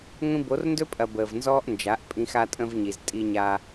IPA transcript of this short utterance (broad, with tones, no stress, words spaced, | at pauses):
ŋʷĩ˧bo˨˦rndɵ˦pʼɐ˨ bəː˨vnzɔː˦ʔnd͡ʒa˨˦ʔpʼĩ˧x a˧tʼə̃˧v ɲi˨z tʼi˧ɲa˧